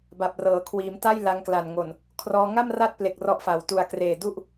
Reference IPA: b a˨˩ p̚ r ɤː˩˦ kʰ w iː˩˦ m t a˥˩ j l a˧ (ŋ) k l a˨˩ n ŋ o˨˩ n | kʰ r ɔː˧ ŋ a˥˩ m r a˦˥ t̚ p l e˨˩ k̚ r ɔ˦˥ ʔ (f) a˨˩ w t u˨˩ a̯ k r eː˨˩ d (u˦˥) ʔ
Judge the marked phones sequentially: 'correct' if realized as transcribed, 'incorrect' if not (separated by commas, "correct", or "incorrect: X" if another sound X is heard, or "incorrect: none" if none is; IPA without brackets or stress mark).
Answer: correct, correct, correct